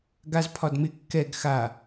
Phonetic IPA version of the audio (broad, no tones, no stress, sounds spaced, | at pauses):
ɡ a z pʰ ɒ d m ɪ kː ɛ ɡ x a